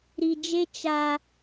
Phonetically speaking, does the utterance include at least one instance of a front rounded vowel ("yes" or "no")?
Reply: no